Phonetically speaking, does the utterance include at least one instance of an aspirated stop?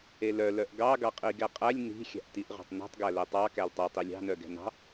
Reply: no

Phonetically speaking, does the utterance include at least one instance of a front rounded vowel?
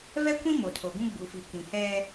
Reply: no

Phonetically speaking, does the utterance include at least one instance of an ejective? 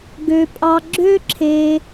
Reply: yes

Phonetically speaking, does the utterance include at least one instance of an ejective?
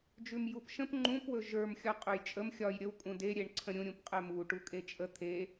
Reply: yes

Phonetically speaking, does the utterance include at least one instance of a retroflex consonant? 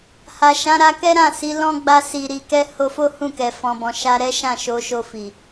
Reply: no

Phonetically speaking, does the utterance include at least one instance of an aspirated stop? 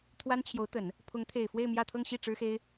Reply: yes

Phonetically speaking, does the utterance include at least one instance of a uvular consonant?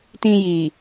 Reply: no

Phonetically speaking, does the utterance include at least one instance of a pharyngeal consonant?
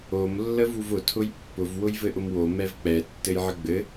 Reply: yes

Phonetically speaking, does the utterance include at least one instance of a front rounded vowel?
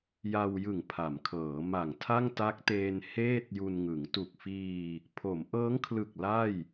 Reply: no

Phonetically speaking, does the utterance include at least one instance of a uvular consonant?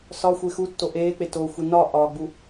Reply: no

